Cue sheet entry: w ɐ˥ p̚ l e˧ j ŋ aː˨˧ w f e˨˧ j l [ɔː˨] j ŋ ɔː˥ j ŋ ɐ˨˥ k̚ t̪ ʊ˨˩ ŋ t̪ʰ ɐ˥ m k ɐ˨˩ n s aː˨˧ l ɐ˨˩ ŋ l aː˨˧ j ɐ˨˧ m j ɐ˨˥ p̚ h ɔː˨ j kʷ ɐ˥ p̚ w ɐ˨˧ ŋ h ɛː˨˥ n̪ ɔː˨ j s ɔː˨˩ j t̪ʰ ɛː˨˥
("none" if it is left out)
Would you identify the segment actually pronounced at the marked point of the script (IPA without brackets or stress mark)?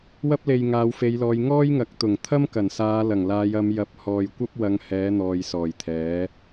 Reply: ɔː˨˧